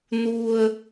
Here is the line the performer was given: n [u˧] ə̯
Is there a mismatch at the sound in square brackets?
no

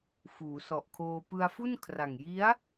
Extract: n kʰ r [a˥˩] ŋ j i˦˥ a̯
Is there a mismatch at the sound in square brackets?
yes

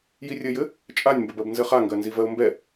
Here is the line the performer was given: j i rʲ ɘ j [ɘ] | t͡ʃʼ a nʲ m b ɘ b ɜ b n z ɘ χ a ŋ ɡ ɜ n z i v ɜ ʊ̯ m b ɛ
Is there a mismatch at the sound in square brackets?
no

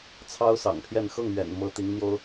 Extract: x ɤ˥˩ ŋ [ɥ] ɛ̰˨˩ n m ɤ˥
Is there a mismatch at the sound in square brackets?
no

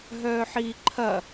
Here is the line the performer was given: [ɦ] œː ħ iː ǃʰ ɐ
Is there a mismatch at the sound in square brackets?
no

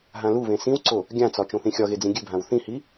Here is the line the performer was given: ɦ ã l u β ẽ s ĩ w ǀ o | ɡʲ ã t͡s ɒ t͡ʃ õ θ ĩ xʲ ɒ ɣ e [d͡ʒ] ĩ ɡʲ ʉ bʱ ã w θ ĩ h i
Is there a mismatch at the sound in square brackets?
yes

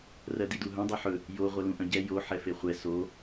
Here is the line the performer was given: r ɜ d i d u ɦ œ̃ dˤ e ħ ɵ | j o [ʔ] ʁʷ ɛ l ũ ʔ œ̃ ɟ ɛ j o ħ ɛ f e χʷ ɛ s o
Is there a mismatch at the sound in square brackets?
yes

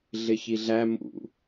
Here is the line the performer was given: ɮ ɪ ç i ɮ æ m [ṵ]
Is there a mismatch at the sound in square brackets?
no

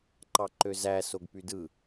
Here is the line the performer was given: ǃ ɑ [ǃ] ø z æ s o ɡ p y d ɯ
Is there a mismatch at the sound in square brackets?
no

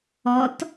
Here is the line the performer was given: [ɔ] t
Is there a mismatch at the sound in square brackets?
no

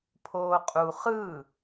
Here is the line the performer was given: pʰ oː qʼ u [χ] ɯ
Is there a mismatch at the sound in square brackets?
no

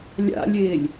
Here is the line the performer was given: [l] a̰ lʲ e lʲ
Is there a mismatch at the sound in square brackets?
yes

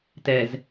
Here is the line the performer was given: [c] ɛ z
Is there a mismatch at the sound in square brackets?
yes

